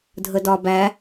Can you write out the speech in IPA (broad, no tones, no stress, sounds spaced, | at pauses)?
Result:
dʱ ə d ɒ b æ